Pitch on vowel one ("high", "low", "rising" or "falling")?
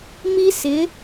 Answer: high